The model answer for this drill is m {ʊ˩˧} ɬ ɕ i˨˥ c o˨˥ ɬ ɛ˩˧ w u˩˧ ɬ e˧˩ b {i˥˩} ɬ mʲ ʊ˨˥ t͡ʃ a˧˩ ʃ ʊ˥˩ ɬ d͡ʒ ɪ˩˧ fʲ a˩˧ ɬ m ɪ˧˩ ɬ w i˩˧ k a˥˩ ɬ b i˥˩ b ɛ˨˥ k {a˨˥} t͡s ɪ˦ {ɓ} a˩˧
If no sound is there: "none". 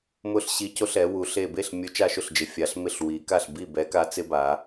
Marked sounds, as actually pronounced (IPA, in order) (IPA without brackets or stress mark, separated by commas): ʊ˦, e˥˩, a˨˥, b